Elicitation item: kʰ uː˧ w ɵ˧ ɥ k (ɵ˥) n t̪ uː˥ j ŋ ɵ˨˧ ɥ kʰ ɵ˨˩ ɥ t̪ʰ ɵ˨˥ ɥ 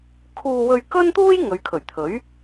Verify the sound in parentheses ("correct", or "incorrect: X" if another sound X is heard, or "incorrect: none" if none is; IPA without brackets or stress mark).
correct